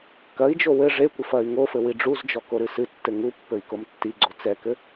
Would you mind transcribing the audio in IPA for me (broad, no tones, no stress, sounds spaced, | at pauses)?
k ɐ i̯ d͡ʒ o w ɘ ʐ e kʷ ɘ f ɐ y̯ ŋ o f ɘ w i ɖ͡ʐ u z d͡ʒ ɔ k o ɾ ɨ s ɨ tː ɘ ŋ u pː ɘ i̯ k o m tː i ɡ͡ǀ o t͡s ɛ k ɘ